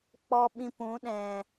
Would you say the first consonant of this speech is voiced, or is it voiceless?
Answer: voiceless